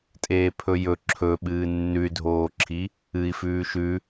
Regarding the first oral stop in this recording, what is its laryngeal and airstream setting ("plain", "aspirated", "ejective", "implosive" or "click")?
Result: ejective